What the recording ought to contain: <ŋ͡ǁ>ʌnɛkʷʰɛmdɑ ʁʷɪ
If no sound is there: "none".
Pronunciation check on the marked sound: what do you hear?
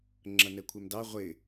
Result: ŋ͡ǁ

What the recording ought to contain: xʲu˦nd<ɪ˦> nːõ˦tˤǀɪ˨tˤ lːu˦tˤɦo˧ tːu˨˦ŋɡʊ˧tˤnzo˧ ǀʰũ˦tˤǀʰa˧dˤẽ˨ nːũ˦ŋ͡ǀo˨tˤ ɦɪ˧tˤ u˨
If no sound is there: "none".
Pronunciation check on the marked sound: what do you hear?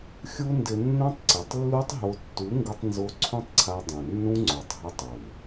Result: ɪ˧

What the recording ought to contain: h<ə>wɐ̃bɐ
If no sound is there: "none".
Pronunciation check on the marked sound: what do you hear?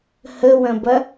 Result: ə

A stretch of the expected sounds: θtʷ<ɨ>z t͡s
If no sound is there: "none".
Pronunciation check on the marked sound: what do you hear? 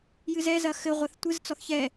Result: ɨ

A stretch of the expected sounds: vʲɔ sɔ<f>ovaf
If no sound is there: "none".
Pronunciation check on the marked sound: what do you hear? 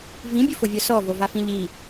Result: v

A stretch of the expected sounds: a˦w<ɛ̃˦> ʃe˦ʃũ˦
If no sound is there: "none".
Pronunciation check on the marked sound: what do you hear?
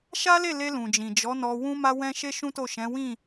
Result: ɛ̃˦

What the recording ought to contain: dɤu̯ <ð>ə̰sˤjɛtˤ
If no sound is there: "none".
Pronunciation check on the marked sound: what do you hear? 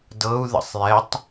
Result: ð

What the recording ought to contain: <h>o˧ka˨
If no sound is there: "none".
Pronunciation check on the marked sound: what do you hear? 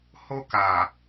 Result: h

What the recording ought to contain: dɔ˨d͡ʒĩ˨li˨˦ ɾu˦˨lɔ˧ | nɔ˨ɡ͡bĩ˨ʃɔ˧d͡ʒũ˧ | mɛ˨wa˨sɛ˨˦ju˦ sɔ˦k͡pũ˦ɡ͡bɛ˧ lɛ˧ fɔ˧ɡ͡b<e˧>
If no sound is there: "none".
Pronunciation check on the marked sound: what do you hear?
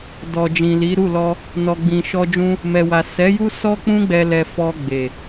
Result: e˨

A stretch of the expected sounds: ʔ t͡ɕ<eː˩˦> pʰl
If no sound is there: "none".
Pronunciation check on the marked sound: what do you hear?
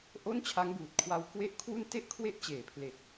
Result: eː˩˦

